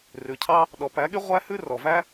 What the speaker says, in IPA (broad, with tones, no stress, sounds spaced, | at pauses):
r ʉ˨ cʰ ɑ˦ | ɗ ɔ˨ p æ˨˦ ɠ y˦ ʁʷ æ˦ h ʉ˦ r ɔ˨ v æ˦